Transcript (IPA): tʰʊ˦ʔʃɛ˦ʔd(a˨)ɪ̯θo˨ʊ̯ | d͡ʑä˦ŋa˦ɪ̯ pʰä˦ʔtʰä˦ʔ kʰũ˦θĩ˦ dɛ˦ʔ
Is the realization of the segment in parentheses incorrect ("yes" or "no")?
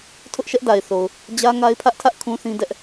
no